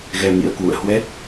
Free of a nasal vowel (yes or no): yes